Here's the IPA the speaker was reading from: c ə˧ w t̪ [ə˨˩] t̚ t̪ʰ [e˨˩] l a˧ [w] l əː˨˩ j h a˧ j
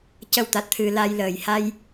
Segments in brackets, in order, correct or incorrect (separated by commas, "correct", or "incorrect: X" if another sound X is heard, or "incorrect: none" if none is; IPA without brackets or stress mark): incorrect: a˨˩, incorrect: ɨ˨˩, incorrect: j